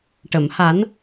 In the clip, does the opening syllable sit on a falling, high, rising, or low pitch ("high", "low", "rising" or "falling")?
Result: low